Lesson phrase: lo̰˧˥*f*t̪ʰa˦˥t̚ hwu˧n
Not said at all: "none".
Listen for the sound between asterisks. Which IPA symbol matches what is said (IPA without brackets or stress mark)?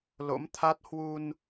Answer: m